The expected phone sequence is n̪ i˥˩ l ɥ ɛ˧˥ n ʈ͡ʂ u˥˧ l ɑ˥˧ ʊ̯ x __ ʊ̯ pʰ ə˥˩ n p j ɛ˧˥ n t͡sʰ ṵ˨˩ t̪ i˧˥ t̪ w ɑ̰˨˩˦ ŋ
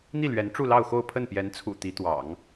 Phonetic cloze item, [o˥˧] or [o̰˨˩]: o˥˧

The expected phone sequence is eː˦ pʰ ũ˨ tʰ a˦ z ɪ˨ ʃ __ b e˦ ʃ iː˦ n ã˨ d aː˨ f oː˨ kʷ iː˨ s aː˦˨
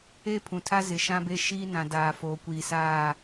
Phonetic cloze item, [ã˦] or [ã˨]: ã˦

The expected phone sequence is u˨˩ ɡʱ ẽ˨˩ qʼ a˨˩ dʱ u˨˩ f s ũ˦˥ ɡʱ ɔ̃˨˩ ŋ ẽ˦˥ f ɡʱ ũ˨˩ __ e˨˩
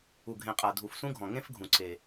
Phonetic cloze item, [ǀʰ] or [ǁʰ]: ǀʰ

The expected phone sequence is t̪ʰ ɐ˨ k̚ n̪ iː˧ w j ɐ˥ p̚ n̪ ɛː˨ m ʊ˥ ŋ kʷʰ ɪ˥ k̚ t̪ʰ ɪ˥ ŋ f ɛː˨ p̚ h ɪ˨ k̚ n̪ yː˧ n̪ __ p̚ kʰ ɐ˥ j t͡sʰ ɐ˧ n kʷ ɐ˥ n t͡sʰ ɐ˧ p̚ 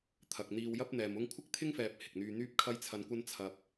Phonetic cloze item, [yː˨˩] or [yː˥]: yː˥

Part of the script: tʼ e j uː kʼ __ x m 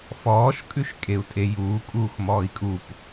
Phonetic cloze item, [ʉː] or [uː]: uː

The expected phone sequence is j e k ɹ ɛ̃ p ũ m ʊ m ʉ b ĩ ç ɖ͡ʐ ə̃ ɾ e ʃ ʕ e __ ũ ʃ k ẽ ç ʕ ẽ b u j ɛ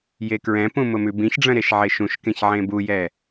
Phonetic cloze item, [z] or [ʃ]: ʃ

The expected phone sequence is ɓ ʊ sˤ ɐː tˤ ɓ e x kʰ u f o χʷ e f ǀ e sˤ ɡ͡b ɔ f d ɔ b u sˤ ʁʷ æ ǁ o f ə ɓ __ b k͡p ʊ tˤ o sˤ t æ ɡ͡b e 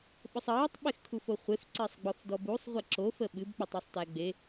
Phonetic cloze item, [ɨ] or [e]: ɨ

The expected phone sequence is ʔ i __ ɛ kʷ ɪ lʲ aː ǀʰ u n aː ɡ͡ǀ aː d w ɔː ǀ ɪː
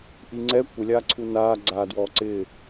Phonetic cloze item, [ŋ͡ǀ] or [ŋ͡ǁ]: ŋ͡ǀ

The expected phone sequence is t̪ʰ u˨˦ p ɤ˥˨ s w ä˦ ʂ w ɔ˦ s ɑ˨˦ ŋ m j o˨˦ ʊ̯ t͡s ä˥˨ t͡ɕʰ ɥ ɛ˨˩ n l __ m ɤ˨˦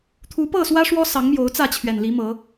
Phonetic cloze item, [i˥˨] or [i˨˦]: i˨˦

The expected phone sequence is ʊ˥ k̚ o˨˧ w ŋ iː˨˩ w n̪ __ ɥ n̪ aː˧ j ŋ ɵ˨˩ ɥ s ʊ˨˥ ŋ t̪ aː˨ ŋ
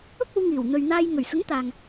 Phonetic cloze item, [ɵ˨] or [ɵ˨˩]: ɵ˨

